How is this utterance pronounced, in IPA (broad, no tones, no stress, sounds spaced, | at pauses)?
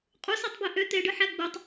qʼ u s e tˤ b i ʔ ø t̪ e ɖ ɯ ħ æ ɡ͡b ɯ tˤ